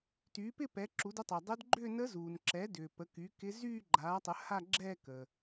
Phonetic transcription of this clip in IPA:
t yː˩˥ p ɪ˥˧ p ɛ˩˥ ǁ u˩˥ d ə˧˥ tˤ ɛ˩ dˤ ʏ˧˥ d ɡ͡ǃ ʏː˥˧ n ə˧˥ z uː˩ n ǁ ɛ˩˥ d ʏː˩ p ə˩˥ k y˩˥ k ɪ˧˥ z yː˥˧ ɡ͡ǃ aː˩˥ tˤ ə˩˥ h a˥˧ ɡ͡ǁ ɛː˥˧ k əː˩

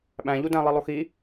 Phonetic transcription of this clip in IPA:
ɓ æ̃ ʎ u d æ̃ lˠ i lˠ o x i

